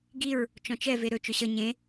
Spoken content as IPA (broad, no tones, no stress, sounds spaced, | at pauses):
ɡ i ɹ | t͡ʃ ɔ̃ t͡ʃ ɛ v e ɾ ɵ t͡ʃ ɵ ɕ ʌ ɲ ẽ